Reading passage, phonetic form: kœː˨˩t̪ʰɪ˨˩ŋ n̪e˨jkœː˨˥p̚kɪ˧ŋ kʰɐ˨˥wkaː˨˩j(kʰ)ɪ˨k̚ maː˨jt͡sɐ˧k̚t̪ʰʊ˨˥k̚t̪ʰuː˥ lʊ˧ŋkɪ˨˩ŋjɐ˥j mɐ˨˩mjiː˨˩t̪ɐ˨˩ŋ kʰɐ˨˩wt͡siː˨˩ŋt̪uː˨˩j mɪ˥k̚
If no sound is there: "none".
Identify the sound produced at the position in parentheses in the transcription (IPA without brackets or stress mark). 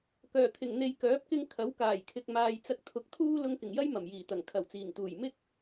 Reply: kʰ